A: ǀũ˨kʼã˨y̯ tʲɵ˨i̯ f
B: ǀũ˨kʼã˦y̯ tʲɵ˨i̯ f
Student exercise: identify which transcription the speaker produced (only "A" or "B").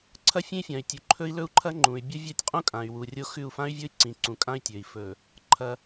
B